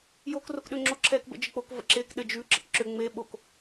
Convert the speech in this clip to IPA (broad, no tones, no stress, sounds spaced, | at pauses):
j oː k r o k ɗ ʏː ŋ͡ǁ o ǁʰ ɛː k b ə̰ d͡ʒ ɘ k͡p o k v ə̰ ǁ eː k ɗ ɘ d͡ʒ ʉ ǁ ə̰ k ǁ ʏ ŋ͡m e ɓ o k